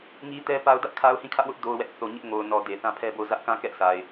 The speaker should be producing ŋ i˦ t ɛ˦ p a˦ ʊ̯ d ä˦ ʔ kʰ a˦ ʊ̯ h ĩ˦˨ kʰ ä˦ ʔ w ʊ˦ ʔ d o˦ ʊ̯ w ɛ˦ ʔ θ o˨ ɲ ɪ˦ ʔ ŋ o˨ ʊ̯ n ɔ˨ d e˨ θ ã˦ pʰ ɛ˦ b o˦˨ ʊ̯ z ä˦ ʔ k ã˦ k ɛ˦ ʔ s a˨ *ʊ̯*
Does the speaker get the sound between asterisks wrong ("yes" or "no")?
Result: yes